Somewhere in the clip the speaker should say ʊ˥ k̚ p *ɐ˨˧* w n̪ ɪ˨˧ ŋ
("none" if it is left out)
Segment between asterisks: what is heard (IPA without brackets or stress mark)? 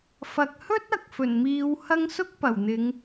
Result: ɐ˨˩